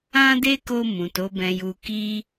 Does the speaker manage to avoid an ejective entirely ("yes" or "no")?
yes